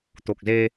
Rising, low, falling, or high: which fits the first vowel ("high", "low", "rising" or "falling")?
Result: low